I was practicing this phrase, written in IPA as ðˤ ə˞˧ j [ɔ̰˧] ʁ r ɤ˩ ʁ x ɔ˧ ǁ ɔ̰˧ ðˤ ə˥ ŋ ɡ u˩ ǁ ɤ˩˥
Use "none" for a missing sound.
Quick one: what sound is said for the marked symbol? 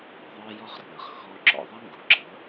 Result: ɔ˧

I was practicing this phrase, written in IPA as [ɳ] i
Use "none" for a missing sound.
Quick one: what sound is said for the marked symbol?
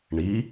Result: ɳ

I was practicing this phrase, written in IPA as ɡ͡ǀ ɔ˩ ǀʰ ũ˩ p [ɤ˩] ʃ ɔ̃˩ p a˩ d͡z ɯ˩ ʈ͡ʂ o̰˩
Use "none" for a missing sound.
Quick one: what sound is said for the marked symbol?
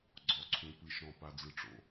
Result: ɯ˩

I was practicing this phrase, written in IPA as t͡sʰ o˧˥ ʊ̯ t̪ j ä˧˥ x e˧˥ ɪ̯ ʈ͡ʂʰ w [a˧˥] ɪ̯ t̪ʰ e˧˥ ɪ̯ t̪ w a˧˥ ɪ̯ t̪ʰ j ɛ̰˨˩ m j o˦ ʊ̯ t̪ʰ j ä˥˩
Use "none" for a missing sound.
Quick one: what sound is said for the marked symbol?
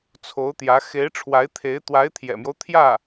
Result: a˧˥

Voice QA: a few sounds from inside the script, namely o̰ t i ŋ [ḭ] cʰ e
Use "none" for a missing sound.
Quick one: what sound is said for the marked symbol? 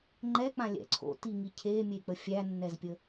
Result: i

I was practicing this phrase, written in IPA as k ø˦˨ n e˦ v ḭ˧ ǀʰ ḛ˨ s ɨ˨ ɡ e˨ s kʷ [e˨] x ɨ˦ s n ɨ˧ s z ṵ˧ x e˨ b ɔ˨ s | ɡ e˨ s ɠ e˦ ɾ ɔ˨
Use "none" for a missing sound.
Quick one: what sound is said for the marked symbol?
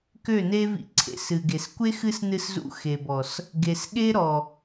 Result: e˦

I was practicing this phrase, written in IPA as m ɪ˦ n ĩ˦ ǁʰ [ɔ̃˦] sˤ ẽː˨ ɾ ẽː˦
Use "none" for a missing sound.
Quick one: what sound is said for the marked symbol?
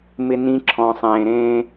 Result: ɔ̃˨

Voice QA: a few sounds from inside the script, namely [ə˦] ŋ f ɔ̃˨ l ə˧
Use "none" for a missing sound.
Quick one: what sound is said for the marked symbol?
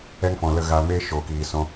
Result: ɛ˦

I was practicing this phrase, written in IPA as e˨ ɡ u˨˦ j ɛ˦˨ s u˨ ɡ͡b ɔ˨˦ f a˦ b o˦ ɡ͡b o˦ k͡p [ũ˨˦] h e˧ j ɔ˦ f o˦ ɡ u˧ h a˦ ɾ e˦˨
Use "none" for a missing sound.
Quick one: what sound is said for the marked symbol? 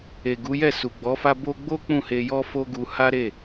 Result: ũ˦˨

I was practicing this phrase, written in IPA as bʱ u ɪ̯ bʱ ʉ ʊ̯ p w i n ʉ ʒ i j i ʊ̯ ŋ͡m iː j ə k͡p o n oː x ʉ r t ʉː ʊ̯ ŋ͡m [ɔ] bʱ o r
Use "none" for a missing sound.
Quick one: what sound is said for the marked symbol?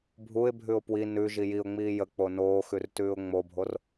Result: o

